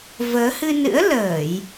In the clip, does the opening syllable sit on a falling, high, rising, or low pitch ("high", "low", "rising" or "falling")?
rising